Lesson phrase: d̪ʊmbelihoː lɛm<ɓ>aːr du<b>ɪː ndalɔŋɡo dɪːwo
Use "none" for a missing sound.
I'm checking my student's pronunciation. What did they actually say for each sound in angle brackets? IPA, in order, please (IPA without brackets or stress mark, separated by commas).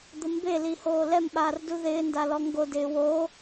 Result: ɓ, ð